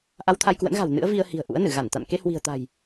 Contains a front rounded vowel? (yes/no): no